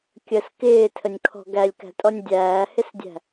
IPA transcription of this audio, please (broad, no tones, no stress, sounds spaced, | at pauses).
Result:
kʲ ə s k ɪː tʰ ə nʲ kʰ ɔ̤ ɡ æ lʲ k æ̤ tʼ ɔ nʲ dʲ æː h ɪ s dʲ æ̤